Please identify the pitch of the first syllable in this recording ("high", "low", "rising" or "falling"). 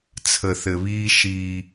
low